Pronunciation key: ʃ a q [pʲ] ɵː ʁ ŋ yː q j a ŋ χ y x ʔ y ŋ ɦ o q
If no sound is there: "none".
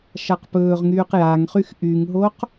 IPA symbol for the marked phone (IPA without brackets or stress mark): p